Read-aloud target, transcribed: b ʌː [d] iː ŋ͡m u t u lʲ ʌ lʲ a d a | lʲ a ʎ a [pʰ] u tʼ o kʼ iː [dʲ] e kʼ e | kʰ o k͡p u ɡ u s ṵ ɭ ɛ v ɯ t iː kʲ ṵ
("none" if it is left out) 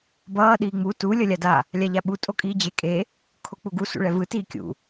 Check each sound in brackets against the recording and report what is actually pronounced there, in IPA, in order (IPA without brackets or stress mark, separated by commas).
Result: ɗ, ɓ, d͡ʑ